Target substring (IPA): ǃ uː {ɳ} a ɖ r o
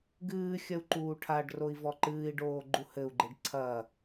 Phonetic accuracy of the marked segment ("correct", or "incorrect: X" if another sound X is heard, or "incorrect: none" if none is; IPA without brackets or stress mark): incorrect: ʈʰ